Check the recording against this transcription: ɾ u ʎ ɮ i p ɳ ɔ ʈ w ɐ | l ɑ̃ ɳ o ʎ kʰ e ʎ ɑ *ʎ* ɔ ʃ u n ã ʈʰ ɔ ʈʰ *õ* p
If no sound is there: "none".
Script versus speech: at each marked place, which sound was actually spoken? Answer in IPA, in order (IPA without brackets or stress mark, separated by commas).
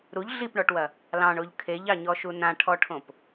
ɲ, õ